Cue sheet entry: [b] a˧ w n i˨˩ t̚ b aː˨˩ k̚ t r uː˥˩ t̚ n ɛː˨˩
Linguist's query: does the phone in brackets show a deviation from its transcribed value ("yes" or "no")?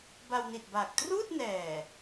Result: no